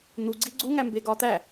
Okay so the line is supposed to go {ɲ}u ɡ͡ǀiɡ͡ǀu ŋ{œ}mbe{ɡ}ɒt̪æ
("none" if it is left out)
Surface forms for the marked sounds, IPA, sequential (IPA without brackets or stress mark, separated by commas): n̪, æ, ɡ